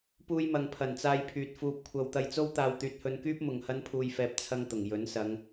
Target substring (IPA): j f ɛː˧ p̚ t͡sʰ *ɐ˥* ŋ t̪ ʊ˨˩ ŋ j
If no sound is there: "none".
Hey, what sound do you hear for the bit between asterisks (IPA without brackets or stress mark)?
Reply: ɐ˥